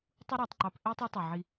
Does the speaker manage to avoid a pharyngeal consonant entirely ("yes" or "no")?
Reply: no